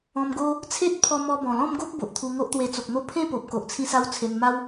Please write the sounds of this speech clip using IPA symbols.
ɔ̃˧mɡo˦ | t͡sʰe˦t̚ pʰɔ˧ mɔ˧ bɔ̃˨˩lɔ̃˥˧mɡo˦k̚ bo˨ʔt̪ʰu˧ŋo˦ʔt̪we˧ t͡so˨k̚n̪o˦ pʰẽ˥˧po˨p̚ ko˨ʔt͡sʰĩ˧sa˧w t͡sʰe˧nma˦w

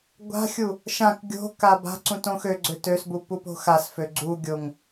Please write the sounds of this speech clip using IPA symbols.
ɡʷa̤xʲu | ʃãk ɡʲo̤ kaba̤ǀũ tõxøɡ͡ǀø tøsbu pupo̤xasfø ɡ͡ǀuɡʲoŋ

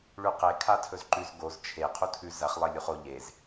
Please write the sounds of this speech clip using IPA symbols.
ɭʉqe kʰatʰɵzǃʉz ɡoz t͡ʃʰe qʰutʰʉ zɐχ lˠelʲuχo ʎez

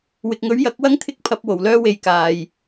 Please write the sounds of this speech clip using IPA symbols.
wɪ˨k̚ŋɵ˨˥ɥ jɐ˨˥k̚wɐ˥ŋt̪ʰɪ˥k̚ pʰɐ˧p̚wo˨˩wlœː˥ we˧jkaː˨j

